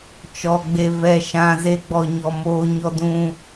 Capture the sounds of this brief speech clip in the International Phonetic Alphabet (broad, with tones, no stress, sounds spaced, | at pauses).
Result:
t͡ʃ ɔ˧ ɡ͡b e˧ v ɛ˧ ʃ ã˧ z e˦ ɡ͡b ɔ˧ ɲ ɔ˧ m oː˦ ɲ ɔ˧ d ũ˧